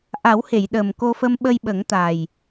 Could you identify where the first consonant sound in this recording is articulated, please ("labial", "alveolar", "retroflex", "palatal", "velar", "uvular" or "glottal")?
glottal